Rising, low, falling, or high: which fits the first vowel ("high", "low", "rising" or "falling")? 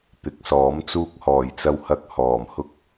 rising